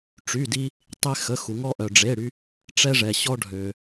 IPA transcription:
ʈ͡ʂy˩˧˩di˧ | tˤe˧xə˩˧˩xu˩ŋɔ˧ ʔœ˩ɖ͡ʐe˩˧˩ɽy˧ | ʈ͡ʂɛ˧ʐɛ˩ɕɔ˧ ɖʱø˩

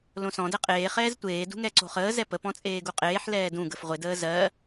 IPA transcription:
lõsɔ̃ dɛqʼeː χɛːztʷeː dṳŋɛǀo̤χəː zɛpə pɔ̃t͡sʼeːɡuqʼeːħ lɛːdũ ɡəfʁʷe dəːzɜ

